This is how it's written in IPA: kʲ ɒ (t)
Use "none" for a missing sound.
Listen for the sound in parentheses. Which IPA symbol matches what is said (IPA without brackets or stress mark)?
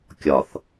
θ